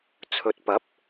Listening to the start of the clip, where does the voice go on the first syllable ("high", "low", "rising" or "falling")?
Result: rising